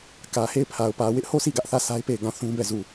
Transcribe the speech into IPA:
k ä˨ h e˦˨ ɪ̯ pʰ a˨ ʊ̯ p ä˨ w ɪ˦ ʔ h o˦˨ sʰ i˦˨ ɡ ä˦ ʔ θ ä˦˨ s a˦ ɪ̯ p e˦˨ ɪ̯ ɡ ã˦˨ θ ũ˦ b ɛ˦˨ z u˦˨

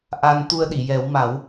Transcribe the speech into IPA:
ʔ a˧ n t̪ u˧ ə̯ ɗ i˨˩˨ j ɛ˨˩˦ w m a˨˩˦ w

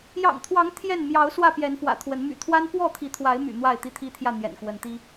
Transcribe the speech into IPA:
j ɑ̰˨˩ ŋ t̪ʰ w ɑ˨˦ ŋ t̪ʰ j ɛ˥˨ n m j ɑ˨˦ ʊ̯ s w ä˥˨ p j ɛ˨˦ n f w ä̰˨˩ t̪ʰ w ə˨˦ n m y̰˨˩ t̪ʰ w a˦ n p w ɔ˥˨ t̪ʰ i˨˦ t̪ʰ w a˨˦ ɪ̯ m y̰˨˩ n̪ w a˥˨ ɪ̯ t̪ i˦ t̪ʰ i˦ t̪ʰ j ä˥˨ n̪ j ɛ̰˨˩ n k w ə˨˦ n t̪ i˦

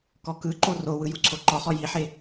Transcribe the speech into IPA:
k ɔ k ɯ ǃ o r o w ɯ j u ǀʰ o ǃ ɔ χ ɔ j i ħ e

